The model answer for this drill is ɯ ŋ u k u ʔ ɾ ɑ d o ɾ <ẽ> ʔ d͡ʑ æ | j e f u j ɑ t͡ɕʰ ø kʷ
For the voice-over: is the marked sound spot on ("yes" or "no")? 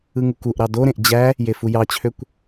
yes